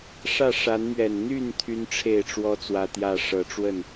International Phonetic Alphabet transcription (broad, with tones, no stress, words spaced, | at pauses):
ʂä˥˨ ʂa˨˦nmɥɛ˨˩n n̪y˥˨n t̪ʰy˦nʈ͡ʂʰe˥˨ɪ̯ʈ͡ʂwɔ˦ t͡swä˦t̪jä˥˨ ʂɤ˨˦ʈ͡ʂwə˥˨n